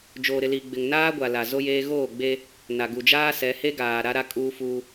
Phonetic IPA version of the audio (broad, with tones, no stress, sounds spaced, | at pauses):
d͡ʒ oː˨ ɾ ɪ˨ l i˨ ɡ͡b ɪ˨ ŋ n aː˦ ɡʷ a˨ l a˨ z o˦ j eː˦ ɣ oː˦˨ ɡ͡b e˦ | n a˨ ɡ u˨ d͡ʒ aː˦ s ɛ˨˦ h e˦ ɡ aː˨ ɾ a˦ ɾ a˦ kʼ uː˦ f uː˦